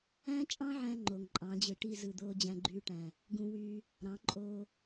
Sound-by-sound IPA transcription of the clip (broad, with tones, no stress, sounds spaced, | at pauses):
æ̃˦ t͡ʃʼ ɑ̃˦ ʕ æ̃˧ ŋ͡ǃ o˨ ŋ ǃʼ ɑ̃˨˦ d͡ʑ ɯ˨ ʈ i˦˨ z ɯ˨ d̪ oː˦ d͡ʑ æ̃˧ ɡ͡ǃ yː˧ ʈ æ̃˨ | ɡ ũ˧ w yː˧ | ɾ ɑ̃˨˦ ǃʼ oː˧